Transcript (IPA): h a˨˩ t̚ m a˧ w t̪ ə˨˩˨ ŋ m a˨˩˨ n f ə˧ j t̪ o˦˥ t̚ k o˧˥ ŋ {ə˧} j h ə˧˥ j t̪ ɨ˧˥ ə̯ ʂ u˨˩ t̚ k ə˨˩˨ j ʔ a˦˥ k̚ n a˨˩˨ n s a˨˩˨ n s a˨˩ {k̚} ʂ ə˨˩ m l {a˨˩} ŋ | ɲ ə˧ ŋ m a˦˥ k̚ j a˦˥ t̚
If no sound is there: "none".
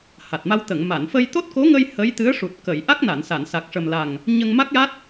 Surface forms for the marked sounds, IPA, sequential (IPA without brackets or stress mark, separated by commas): ə˧, k̚, a˨˩